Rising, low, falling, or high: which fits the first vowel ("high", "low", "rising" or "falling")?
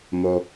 high